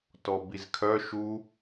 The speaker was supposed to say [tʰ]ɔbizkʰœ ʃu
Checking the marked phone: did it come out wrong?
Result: yes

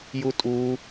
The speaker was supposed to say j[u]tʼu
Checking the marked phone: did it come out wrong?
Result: no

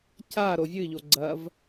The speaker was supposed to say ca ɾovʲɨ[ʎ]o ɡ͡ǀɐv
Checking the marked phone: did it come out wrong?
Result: no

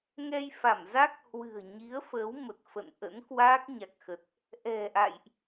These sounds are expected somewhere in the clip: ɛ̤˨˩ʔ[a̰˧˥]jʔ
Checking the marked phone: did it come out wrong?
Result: yes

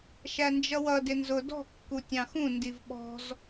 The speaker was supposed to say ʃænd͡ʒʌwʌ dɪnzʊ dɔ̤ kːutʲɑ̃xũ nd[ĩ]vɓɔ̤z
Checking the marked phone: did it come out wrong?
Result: yes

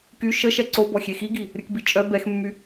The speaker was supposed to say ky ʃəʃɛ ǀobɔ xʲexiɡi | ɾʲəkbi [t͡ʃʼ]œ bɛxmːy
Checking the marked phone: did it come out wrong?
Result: no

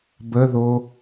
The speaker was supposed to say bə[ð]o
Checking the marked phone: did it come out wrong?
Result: no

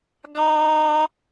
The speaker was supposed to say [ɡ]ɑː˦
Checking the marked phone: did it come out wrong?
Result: no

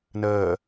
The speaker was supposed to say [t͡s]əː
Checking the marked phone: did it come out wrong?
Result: yes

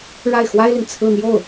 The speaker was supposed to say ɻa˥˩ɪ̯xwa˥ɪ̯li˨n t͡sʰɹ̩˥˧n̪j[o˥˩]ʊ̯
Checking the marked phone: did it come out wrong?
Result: no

